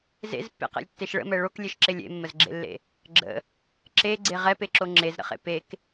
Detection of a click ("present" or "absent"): present